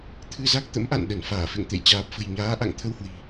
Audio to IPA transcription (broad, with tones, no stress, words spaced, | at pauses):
t̪ʰɨ˧za˦˥k̚ t̪ə̰˧˥mʔa̰˧˨n ɗə˧˩n faː˧˩ fḛ˧˨ŋt̪ḛ˧˨j t͡ɕaː˨˩p̚fə̤˨˩jɲaː˨˦ʔa̰˧˨ŋ t̪ʰə˧whwi̤˨˩